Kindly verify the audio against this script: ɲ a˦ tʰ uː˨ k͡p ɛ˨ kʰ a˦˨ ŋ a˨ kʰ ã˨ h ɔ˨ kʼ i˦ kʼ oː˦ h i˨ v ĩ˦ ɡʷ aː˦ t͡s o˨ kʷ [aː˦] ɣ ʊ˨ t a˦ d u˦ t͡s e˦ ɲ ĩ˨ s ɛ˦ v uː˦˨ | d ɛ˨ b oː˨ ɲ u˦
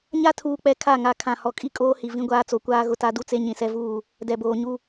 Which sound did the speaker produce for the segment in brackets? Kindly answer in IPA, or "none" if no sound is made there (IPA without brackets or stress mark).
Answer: aː˦